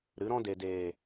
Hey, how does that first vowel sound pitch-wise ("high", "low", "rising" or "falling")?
rising